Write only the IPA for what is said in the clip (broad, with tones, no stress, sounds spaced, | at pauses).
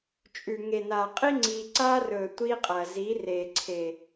t͡ʃʼ ʉ˨ ŋ e˨ n aː˨ qʼ i˦ ŋ͡ǀ iː˧ ǀ aː˦ r ɵː˨ tʷ iː˦ qʼ ɐː˨ z i˨˦ r eː˨ ǀʰ e˨